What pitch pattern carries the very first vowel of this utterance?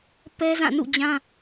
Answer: high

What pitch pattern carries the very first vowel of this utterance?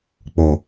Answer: low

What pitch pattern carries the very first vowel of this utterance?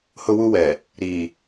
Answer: high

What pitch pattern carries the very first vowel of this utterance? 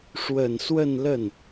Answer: low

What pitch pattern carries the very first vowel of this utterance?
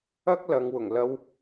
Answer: high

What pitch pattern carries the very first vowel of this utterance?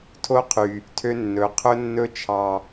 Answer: high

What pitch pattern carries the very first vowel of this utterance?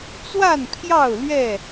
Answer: falling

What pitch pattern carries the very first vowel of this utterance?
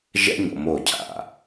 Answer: high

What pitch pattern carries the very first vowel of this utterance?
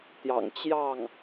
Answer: low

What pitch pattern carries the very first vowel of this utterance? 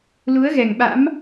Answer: rising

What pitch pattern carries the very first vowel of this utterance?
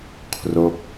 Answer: falling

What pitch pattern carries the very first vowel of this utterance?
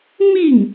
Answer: falling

